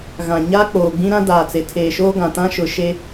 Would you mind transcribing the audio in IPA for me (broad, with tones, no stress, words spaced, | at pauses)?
ɣã˨ɲa˦ k͡poː˨ɡ͡bĩ˦ ɾã˦daː˨t͡se˨ tʰeː˨ʃoː˦ɡã˨ tã˦ʃʊ˨ ʃe˦